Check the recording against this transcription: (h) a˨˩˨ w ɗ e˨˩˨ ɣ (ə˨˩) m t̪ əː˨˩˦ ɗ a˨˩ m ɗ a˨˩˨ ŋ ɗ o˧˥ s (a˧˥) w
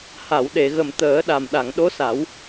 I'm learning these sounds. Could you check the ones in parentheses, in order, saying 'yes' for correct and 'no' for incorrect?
yes, yes, no

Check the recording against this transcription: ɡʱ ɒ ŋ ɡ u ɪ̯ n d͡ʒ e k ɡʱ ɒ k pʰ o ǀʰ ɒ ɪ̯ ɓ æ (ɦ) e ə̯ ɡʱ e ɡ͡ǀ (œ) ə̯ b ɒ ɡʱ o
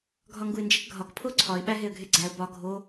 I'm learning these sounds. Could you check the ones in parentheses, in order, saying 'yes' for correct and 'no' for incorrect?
yes, no

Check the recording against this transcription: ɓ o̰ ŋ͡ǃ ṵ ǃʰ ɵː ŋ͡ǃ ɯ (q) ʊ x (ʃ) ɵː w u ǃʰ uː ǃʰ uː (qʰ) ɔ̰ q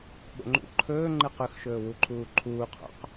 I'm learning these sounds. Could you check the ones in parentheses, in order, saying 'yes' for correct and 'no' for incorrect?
yes, yes, yes

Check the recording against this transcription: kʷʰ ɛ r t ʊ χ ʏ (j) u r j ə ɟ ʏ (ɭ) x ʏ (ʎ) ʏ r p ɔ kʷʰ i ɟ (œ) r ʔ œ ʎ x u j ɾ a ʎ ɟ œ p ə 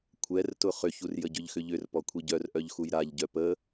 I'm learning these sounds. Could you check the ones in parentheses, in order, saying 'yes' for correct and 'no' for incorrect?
no, no, yes, yes

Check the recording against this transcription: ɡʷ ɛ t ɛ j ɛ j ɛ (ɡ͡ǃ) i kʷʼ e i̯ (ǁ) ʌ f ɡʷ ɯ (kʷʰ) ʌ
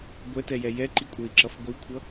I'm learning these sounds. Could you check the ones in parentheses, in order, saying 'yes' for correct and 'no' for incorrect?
no, yes, yes

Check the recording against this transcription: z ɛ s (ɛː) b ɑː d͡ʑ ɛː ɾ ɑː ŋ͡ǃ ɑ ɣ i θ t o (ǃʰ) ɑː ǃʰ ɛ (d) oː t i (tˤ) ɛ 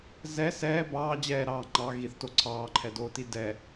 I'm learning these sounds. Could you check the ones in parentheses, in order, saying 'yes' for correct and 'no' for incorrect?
yes, no, yes, no

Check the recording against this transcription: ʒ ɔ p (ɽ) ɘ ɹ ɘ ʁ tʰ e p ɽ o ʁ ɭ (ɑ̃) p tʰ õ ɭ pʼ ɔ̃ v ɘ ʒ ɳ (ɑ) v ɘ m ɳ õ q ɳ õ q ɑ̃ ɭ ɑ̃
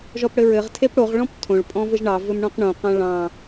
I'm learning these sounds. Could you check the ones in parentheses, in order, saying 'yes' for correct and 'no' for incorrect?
yes, no, yes

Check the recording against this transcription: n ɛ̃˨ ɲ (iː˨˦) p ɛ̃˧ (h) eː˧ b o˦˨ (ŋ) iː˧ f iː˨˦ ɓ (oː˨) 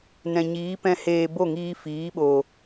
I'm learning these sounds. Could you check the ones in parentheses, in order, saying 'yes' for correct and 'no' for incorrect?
yes, yes, yes, yes

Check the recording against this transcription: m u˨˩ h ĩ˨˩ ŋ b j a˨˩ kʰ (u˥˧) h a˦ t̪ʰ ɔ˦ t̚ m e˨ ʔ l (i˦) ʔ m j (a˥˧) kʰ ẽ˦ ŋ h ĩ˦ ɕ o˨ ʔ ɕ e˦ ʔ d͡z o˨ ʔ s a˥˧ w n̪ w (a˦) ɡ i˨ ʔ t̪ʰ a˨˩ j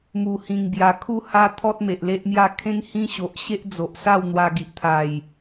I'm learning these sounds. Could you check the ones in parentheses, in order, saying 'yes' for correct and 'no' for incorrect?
yes, no, yes, no

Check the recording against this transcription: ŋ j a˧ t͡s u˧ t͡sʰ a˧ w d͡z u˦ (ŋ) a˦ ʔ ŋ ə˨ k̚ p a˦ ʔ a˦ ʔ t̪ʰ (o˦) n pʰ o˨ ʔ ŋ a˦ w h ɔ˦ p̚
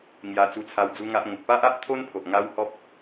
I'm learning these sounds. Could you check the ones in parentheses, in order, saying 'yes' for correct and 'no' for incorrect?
yes, yes

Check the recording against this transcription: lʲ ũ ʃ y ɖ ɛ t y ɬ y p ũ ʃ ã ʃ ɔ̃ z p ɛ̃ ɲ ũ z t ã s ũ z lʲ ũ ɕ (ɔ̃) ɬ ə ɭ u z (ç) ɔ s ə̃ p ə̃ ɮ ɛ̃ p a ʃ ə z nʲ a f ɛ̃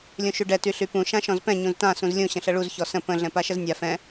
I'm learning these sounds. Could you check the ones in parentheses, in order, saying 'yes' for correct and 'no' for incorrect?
no, yes

